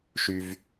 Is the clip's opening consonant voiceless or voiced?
voiceless